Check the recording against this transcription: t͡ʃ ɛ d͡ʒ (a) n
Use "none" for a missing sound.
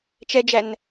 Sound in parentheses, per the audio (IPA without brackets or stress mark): æ